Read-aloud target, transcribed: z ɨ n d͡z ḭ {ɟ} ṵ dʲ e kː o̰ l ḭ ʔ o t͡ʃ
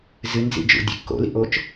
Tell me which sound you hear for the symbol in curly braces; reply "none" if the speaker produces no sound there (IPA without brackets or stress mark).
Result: d͡ʒ